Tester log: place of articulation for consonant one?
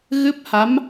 velar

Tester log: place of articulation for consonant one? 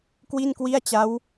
velar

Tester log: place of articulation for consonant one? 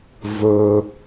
labial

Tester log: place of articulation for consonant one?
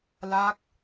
alveolar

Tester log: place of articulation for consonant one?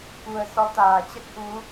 velar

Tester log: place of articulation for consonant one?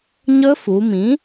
palatal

